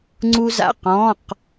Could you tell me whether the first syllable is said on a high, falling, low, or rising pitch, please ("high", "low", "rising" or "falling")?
high